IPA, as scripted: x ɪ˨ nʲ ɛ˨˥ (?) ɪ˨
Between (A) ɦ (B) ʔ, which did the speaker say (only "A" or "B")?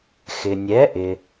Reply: B